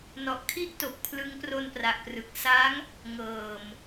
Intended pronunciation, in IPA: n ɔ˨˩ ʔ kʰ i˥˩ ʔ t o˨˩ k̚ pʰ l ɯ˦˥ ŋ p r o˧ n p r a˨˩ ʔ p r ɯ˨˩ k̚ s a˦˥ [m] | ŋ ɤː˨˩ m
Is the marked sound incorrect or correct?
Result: incorrect